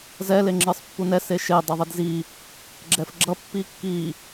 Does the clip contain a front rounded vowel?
no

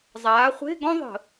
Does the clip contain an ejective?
no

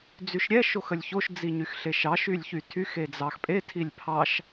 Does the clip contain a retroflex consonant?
no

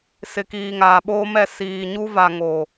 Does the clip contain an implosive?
yes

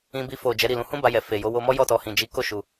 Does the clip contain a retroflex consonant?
no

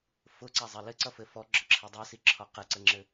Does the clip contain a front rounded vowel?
no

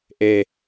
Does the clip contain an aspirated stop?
no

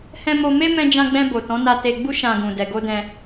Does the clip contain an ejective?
no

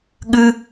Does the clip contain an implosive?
yes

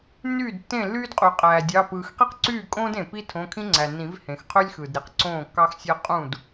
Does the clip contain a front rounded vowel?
yes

